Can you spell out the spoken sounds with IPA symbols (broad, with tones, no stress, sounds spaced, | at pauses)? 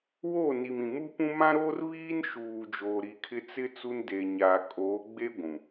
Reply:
w o˦˨ n i˨ m ĩ˨ m u˦ p ũ˦ m ã˦ ɾ oː˦ r β iː˦ n ʃ uː˨ d͡ʒ oː˨ ɾ i˨ kʰ ɪ˦ t͡s ɪ˦ t͡s u˦ n d e˨ ɲ aː˨ kʼ oː˨˦ ɡ͡b e˦ ɡʷ ũ˨